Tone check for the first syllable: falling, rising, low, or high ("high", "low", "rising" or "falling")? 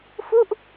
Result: falling